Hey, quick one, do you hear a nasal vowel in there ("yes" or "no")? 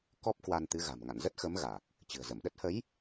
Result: no